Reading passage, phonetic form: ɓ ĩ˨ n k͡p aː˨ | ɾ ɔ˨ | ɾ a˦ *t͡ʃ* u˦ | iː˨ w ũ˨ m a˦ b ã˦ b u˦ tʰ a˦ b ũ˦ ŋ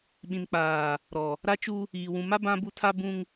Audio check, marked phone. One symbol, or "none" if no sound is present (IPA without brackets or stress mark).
t͡ʃ